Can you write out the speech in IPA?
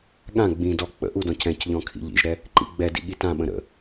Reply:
ɠ ã ɡ͡b ĩ d ɔ k͡p ə̰ ʔ u d ɔ̃ c ɛ̃ c ʎ ɔ̃ kʰ ḭ ʎ ḭ ʒ ɾ ɛ | ǃ ḭ ɡ͡b ɛ d ḭ ɠ i t ã ɓ ə̃ ɾ ə̰

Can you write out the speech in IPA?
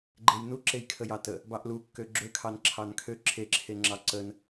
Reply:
ɡ͡ǃ e j n u ǁ e j kʰ ə j ɑ t ə | b ɑ ʔ l u kː ø ɡ͡ǁ ø kʰ ɑ n ǁʰ ɑ n kʰ ø ǁʰ e ǁʰ e ŋ͡ǁ ɑ ǀ ə n

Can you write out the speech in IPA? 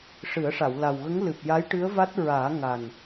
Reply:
ʂ ɨ˨˩˦ ə̯ ʂ a˨˩˨ w l a˨˩ w ɣ ə˧˥ ŋ l ɨ˨˩ p̚ j a˧˥ j ʈ ɨ˧˥ ə̯ v a˦˥ t̚ ɹ aː˨˩˦ ŋ a˨˩ n

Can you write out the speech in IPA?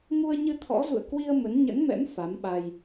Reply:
ŋ u˧ ə̯ ɲ ɨ˧ t̪ʰ ɔ̰˧˥ z ṵ˧˨ ə̯ k w i˧ ə̯ m ə˨˦ n ɲ ə̰˧˥ n m ɛ̰˧˥ m f a˨˦ m ɓ a˧ j

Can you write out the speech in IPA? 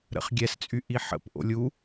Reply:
ɾ ə̰ χ ɡʲ ɛ s t͡sʼ y ʔ i ħ ə̰ p ʔ o̰ lʲ u

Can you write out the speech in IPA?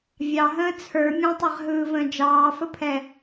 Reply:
vʲ ɑ ɦ ə̃ː t͡sʰ ə˞ mʲ ɛ̃ tˤ e ʁ ɦ ɯː v ə̃ː d͡ʒ ɑː f ə pʰ ɛ

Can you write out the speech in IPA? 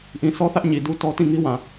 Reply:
ʔ ĩ˨ s ɔ˦ θ ä˦ ʔ ɲ i˨ d u˦ t ɔ˦ t ĩ˦˨ ŋ i˦ w ã˨

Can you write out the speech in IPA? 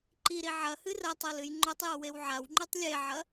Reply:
ǃ i ɾ i ʕ ɐ h ɨ r ɐ tˤ o l ɨ j ŋ͡ǃ o tˤ j o w e w ʕ a w ŋ͡ǃ ʉ tˤ lʲ e ʕ ɐ

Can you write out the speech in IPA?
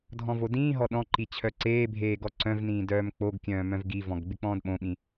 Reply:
dʱ ɔ̃ v o d ĩː ɦ ɔ ɗ ɔ̃ ǃ i t͡ɕʰ œ ǀ eː bʱ eː ɡ ɔ ǀ œ̃ v n ĩː d œː m k͡p o ɡ kʲ œ̃ː m œ̃ v ɡ i v ɔ̃ ɡ ɡ͡b ɪ k͡p ɔ̃ː d ɓ õ ɓ ĩ

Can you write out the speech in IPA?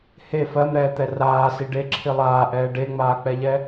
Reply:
h e f ɜ m ɾ ɛː t̪ ɛ r aː s i ɖ e ǁʰ i lˠ aː ʔ ɛː ɖ e ŋ͡m aː k͡p ɛ ʎ ɛ

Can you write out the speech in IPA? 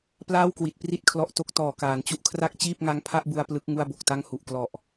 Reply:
p l aː˥˩ w k w i˨˩ t̚ p r i˥˩ t̚ kʰ l ɔ˦˥ ʔ t o˦˥ k̚ t ɔː˨˩ k aː˩˦ n t͡ɕ u˦˥ ʔ kʰ r a˥˩ k̚ t͡ɕ iː˥˩ p̚ ŋ a˦˥ ŋ pʰ a˥˩ ʔ b u˧ a̯ p l ɯ˦˥ k̚ ŋ u˥˩ a̯ b o˨˩ k̚ t a˥˩ ŋ h u˨˩ ʔ k l ɔ˨˩ ʔ

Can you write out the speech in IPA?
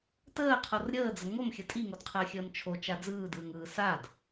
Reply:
t əː qʰ o r ɾʲ əː d͡z ə ŋ o m xʲ ə tʼ i ŋ o d qʰ əː xʲ əː m t͡ʃʰ o t͡ʃ a d͡z ɯː d ɯː ŋ ɯː s a d

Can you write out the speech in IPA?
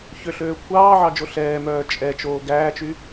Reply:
ç ø ɬ øː kʷʰ ɑː ʕ ɑ d͡ʒ o ɬ ɛː m œː t͡ʃʼ ɛ t͡ʃ oː ɡ æː t͡ʃ y

